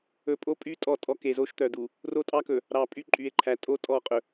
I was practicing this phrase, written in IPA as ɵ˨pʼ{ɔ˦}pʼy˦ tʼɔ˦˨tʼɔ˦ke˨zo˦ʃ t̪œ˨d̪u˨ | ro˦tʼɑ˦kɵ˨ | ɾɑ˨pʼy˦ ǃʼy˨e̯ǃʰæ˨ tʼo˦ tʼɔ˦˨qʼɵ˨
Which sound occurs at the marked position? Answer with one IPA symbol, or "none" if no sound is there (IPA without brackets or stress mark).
o˦